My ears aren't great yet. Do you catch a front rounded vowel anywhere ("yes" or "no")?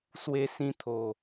no